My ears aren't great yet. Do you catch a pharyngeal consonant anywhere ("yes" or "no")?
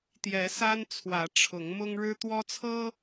no